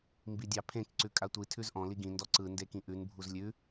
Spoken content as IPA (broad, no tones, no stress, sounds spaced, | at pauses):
m b i dʲ ɑ pʰ ẽ k ǀ ʉ kʼ a tʷ i tʰ ʉ z ʔ ɔ̃ l i ɡ ĩ n d ɔ ǀ ɯ n d e k ĩ ʔ ʉ n bʱ u z lʲ ʉ